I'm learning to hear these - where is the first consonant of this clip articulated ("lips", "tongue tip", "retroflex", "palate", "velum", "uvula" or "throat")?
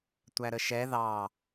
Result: tongue tip